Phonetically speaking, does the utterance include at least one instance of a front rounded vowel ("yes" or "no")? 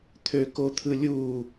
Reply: yes